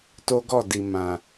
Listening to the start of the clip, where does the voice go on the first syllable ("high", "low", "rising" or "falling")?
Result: high